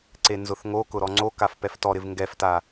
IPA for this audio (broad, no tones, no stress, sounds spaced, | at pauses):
ǀ e n z ʊ θ ŋ o k ʊ ɾ ɔ ŋ͡ǀ o k a f p ɛ f t ɔ ɾ ɪ v ŋ ɡ ɛ f t a